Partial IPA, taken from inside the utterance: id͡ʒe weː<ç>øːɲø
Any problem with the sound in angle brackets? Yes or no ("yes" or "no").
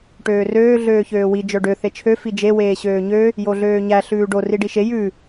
yes